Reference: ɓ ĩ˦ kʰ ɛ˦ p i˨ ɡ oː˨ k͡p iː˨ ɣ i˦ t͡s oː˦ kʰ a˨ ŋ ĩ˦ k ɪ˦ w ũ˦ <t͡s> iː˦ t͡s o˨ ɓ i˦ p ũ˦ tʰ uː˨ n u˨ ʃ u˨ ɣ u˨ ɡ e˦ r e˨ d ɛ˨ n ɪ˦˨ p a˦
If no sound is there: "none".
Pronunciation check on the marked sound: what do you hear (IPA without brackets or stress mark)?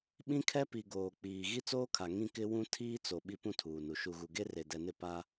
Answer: tʰ